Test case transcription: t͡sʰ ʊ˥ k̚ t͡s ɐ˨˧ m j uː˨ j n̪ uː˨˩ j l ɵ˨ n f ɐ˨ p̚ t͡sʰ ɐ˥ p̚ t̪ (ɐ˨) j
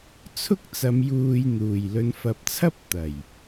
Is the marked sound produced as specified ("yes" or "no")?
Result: no